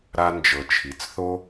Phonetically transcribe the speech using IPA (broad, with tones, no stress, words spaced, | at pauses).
ɾa˧nd͡ʒɤ˩t͡ʃʰi˩t͡sθo˥